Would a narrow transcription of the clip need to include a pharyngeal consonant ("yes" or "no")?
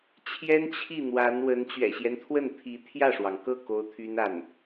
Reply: no